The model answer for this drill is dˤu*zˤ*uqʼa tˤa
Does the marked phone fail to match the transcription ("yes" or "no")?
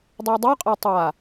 yes